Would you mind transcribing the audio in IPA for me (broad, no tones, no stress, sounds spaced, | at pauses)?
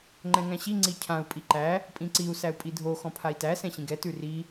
ŋ͡ǃ ɛ̃ ŋ æ̃ ɕ i ŋ͡ǀ i cʰ ã u̯ pʼ i ǃ æ | pʼ ĩ ǀ i u̯ s æ u̯ pʼ i dʱ o x ɔ̃ pʰ a i̯ t æ s ɛ̃ ɕ ĩ ɡ ɛ t ʉ r i